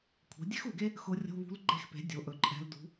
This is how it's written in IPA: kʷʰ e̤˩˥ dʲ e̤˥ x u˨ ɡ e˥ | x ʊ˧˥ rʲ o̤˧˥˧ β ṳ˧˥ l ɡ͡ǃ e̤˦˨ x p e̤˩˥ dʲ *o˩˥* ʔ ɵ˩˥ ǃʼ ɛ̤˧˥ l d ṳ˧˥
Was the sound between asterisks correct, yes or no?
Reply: yes